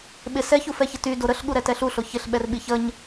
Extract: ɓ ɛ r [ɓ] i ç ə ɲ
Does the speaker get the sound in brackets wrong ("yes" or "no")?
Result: no